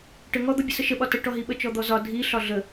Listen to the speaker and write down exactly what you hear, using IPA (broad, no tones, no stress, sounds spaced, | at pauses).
ʈ ə ŋ ɔ d̪ ɒ bʲ ə s ə ʃ ə ɓ ɒ t ə ʈ ɔ ɦ i ɓ ə t͡ʃ ɔ d̪ ɔ z ɒ dʱ i ɬ ɒ ɮ ə